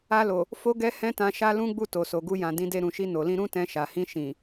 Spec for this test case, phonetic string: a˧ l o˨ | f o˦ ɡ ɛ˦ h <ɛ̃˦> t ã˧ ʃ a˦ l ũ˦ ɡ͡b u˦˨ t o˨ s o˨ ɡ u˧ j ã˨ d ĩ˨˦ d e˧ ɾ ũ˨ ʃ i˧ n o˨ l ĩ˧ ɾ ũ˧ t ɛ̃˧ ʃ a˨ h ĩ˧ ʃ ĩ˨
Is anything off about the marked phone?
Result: no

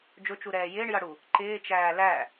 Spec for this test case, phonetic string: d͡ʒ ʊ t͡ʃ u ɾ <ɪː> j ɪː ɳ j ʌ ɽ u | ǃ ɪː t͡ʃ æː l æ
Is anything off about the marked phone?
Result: yes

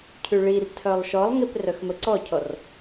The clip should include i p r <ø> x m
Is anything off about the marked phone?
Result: yes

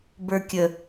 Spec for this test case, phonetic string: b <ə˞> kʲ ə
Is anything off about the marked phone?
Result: no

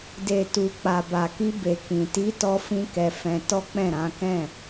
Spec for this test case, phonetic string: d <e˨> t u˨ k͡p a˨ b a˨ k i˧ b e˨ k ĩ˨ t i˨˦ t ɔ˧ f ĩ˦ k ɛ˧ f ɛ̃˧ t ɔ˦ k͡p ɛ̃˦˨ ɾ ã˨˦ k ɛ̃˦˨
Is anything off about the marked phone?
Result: no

